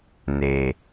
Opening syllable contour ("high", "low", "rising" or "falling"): low